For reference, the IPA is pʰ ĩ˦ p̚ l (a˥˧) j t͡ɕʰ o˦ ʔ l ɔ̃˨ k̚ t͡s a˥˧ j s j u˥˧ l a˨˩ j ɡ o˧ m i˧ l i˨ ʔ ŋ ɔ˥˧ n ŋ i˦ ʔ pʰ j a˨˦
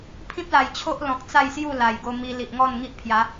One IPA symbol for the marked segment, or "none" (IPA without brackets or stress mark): a˨˩